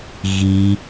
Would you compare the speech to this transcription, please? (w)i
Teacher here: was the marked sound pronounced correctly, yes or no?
no